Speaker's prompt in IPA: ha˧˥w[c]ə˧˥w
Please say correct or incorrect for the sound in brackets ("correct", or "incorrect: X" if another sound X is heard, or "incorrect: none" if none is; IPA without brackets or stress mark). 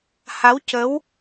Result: correct